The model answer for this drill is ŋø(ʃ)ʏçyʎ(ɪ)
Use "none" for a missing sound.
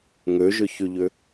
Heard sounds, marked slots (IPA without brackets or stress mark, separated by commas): ʒ, ʏ